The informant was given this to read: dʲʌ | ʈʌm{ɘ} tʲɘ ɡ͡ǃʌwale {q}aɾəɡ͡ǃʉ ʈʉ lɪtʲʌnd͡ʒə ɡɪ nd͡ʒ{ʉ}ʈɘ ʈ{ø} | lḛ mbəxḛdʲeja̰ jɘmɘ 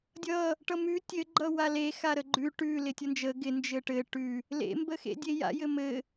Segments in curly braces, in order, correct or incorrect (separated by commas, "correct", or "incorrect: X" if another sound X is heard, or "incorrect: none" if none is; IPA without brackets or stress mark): incorrect: ʉ, incorrect: x, incorrect: ɘ, incorrect: ʉ